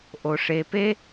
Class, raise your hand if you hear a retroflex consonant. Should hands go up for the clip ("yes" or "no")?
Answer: yes